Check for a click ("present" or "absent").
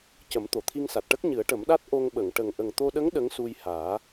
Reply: absent